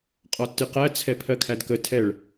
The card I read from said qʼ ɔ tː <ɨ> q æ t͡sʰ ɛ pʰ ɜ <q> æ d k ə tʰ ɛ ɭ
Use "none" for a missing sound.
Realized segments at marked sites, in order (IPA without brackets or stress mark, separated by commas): ɨ, kʰ